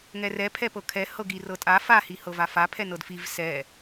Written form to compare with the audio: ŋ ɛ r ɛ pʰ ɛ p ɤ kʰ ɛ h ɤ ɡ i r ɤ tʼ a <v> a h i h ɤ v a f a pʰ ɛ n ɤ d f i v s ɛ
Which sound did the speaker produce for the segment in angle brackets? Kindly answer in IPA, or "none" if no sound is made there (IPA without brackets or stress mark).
f